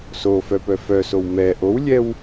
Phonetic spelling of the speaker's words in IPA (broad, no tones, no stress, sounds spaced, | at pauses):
s o f œ p œ f œ s o w m ɛ ʔ o w lʲ ɛ w